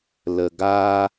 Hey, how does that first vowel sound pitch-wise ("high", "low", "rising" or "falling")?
low